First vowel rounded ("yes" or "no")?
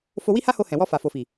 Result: yes